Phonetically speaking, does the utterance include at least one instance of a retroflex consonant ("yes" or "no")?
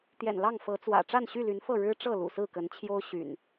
yes